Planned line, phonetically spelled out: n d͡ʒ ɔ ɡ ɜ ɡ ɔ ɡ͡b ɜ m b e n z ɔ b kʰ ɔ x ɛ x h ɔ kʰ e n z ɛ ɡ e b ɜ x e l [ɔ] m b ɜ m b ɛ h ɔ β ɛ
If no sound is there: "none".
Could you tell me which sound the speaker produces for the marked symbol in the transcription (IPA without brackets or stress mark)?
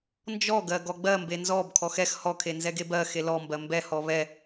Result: ɔ